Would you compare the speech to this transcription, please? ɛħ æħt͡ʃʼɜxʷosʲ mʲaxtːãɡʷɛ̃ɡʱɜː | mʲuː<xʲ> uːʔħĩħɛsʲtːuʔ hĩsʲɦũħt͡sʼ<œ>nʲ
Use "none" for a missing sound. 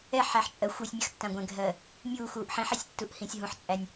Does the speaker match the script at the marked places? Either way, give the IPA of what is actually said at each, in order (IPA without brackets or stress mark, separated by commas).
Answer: x, æ